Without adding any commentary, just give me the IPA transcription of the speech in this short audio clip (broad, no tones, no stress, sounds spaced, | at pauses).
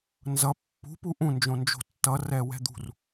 n z ʌ pː ṳ p u ʔ ũ n d͡ʒ õ n d͡ʒ o̤ tː ʌ r ɛ w ɛ̤ d̪ ṳ r